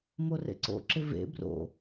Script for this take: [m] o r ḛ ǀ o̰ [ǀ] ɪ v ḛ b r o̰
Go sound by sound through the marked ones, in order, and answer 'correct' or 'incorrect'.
correct, incorrect: ǁ

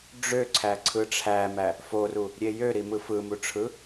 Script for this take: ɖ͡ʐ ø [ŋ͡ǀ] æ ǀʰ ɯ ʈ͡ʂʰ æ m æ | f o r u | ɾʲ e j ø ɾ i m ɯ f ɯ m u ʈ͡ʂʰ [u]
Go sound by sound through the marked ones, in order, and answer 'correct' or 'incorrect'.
incorrect: ǀʰ, incorrect: ɯ

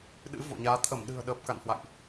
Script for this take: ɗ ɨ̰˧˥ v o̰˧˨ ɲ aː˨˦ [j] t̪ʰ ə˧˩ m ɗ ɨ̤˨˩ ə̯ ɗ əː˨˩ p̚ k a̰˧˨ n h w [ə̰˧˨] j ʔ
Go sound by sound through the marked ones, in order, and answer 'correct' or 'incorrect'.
incorrect: none, incorrect: a̰˧˨

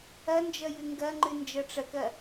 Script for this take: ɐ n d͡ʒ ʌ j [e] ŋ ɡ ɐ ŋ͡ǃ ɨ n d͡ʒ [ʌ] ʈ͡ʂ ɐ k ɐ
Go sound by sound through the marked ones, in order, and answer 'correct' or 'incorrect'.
incorrect: ɨ, correct

